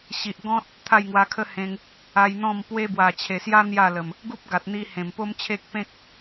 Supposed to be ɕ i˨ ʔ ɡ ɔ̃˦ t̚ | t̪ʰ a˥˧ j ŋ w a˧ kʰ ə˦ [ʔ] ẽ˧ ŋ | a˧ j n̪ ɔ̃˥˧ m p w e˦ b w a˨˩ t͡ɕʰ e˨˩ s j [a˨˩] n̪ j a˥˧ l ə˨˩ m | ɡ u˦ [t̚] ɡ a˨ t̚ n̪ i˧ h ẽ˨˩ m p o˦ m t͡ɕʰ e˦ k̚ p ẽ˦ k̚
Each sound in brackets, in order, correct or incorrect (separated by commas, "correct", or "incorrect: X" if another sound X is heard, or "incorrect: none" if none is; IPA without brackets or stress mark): incorrect: h, incorrect: a˦, incorrect: p̚